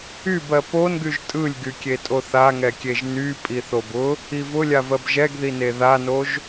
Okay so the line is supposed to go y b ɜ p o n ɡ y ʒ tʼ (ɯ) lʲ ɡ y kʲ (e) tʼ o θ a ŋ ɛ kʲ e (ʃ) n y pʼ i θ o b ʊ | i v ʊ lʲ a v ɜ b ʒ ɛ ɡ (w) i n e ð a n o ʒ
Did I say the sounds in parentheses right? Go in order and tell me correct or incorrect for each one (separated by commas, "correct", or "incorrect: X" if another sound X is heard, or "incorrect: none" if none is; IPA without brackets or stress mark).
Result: correct, correct, incorrect: ʒ, incorrect: ð